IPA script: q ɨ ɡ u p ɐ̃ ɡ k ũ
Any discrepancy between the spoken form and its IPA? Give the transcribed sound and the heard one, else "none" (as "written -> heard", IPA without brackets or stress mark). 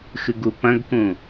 q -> x